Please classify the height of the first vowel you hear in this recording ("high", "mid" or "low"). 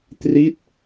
high